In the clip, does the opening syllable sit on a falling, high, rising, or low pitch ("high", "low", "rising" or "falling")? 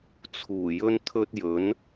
low